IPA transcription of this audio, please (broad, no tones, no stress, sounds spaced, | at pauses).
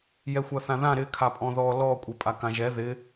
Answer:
j ɛ xʷ a θ ã ð ã ɾ ɪ kʰ a pʼ ɔ̃ ð ɔ l ɔ kʷʼ ɛ pʼ a k ã ʒ ɛ ð ɪ